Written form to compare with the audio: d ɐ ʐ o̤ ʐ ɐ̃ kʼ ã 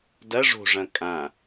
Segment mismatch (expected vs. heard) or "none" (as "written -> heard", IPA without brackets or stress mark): none